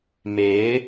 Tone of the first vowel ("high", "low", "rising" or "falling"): rising